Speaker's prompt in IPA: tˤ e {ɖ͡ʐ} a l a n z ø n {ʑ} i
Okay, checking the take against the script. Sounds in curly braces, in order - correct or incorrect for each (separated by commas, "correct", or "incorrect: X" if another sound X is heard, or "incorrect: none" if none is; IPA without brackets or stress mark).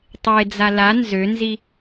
incorrect: d͡z, incorrect: z